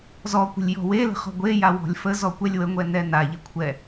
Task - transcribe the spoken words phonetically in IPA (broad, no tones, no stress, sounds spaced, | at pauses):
z ɔ kʷ ə̤ lʲ j ɔ̤ w e l ə̤ χ ɔ̤ ɡʷ e j a w ɔ̤ lʲ f ə z ɔ kʷ ɛ lʲ w ə ŋʷ ɛ n ɛ n a ʎ e kʷʰ ɛ